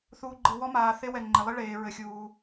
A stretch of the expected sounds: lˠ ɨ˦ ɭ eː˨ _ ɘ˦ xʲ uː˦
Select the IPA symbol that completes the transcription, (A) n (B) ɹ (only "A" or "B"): B